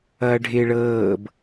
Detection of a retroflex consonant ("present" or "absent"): present